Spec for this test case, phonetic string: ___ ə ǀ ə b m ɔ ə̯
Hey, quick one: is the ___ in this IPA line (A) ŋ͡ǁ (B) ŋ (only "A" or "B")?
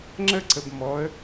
A